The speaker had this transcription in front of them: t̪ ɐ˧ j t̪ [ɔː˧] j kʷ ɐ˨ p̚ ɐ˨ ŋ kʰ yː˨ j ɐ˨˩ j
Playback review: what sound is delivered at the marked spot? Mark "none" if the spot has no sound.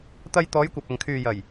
ɔː˨˧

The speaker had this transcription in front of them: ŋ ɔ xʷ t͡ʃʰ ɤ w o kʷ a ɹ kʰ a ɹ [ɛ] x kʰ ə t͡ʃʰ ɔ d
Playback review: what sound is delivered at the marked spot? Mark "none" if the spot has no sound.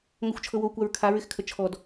ɪ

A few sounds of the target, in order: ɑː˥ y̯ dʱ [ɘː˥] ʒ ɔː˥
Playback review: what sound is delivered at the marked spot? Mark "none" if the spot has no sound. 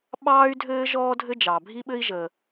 ɘː˥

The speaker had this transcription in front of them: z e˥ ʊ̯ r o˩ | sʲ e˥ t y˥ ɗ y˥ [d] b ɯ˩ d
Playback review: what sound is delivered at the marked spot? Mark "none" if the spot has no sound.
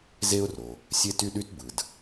t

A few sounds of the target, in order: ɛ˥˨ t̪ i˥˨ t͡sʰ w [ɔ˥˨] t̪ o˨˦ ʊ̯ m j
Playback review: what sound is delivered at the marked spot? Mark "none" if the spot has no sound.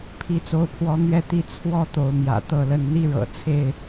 ɔ˥˨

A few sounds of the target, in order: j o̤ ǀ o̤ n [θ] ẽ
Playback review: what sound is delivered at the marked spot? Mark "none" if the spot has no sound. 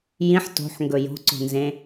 z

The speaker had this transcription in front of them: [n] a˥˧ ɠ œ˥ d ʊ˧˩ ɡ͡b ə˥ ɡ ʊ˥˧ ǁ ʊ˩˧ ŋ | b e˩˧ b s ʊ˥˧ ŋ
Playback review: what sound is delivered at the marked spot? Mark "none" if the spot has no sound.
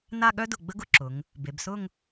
n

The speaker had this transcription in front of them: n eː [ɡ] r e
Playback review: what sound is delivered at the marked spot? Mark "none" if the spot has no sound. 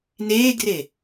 ɡ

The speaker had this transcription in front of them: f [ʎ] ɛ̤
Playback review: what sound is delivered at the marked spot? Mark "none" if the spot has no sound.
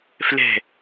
l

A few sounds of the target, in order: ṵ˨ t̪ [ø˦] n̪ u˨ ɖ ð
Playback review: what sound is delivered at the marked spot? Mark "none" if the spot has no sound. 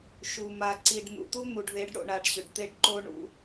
u˦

